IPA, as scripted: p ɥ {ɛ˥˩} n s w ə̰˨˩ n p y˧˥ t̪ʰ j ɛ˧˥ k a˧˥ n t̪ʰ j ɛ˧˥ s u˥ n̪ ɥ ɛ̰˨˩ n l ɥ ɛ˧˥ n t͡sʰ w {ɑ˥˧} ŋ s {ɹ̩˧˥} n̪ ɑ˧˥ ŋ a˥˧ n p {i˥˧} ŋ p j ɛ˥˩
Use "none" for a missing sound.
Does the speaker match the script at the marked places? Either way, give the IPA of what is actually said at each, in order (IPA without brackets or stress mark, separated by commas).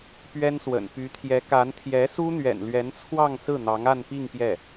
ɛ˥, ɑ˥˧, ɹ̩˥˩, i˥˧